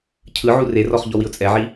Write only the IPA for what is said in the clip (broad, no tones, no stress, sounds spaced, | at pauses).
cʰ ɯ ʕ u r e r ɔ χ ʎ ɔ w i ʊ̯ t͡sʼ ɛ ʕ i